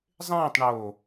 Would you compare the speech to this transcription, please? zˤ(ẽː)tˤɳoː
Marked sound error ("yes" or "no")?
no